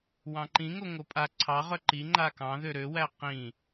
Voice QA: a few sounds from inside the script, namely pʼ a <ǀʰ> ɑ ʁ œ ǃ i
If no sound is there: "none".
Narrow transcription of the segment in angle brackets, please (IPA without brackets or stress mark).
ǀʰ